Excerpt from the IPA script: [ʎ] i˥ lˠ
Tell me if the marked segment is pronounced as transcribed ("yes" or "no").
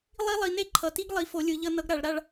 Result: no